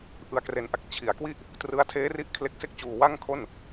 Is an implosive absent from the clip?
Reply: yes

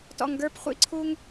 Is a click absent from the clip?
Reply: no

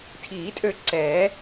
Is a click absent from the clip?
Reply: no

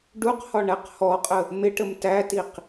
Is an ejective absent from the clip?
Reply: no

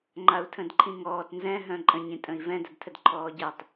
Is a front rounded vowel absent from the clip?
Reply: no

